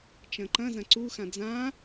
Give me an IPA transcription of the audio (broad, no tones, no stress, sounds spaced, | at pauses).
t͡ʃ ɐ̃ ǃ ɐ̃ z ɐ̃ ǀ u x ã d͡z ã